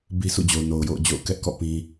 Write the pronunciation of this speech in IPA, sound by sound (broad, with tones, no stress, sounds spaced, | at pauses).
b i˦ sʰ ṵ˦˨ d͡ʑ o˨ ʊ̯ n o˨ ʊ̯ j o̰˦˨ ʊ̯ d͡ʑ o̰˦˨ ʊ̯ k ɛ˦ ʔ k ɔ̰˦˨ p ĩ˦